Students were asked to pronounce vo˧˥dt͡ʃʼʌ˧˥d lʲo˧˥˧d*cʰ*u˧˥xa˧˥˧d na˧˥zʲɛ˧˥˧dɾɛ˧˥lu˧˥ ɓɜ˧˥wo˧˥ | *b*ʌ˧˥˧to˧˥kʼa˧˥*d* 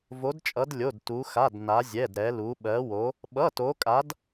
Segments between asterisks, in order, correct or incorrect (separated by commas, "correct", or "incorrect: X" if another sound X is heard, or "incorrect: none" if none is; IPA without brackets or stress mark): incorrect: t, incorrect: ɓ, correct